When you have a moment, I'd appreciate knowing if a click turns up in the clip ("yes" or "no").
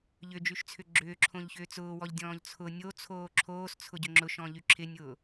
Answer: yes